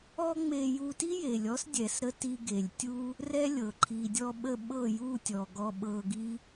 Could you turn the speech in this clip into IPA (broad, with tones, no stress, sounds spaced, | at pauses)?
ɔ˦ ŋ͡m e˧ j u˧ t i˦ j e˨ lʲ ɔ˦ s dʲ ɛ˨ s ɾ ə˧ t i˧ ɡ e˨ lʲ tʲ u˦ | r ɛ˦ lʲ ɤ˨ ǃʰ i˨ dʲ ɔ˧ ɓ ə˧ ɓ ɤ˦˨ j u˦˨ tʲ ɔ˨ ɡ ɔ˧ ɓ ɤ˧ ɡ i˦